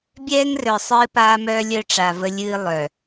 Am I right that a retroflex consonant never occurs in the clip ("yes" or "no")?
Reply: no